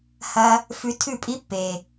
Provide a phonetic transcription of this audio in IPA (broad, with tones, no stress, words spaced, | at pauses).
hɐ˦ | fʉ˧ tʰʉ˦˨pʼi˦ pːe˨